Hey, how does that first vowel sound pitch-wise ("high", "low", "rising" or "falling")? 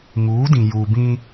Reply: rising